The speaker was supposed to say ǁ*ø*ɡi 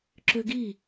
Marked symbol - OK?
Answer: yes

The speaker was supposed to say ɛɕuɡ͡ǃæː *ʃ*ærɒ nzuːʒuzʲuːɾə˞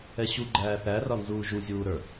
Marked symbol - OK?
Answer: no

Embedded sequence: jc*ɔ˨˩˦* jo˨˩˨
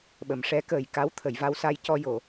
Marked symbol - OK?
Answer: no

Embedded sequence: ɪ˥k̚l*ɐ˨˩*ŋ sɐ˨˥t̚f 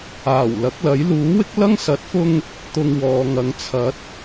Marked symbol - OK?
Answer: no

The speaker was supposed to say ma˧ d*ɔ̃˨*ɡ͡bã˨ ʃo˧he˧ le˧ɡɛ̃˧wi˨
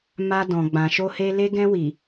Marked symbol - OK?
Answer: yes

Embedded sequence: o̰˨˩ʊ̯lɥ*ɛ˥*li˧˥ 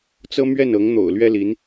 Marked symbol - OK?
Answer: yes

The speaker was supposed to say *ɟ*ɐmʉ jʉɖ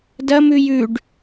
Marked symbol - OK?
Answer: no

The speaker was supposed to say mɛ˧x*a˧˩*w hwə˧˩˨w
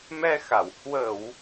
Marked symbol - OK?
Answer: yes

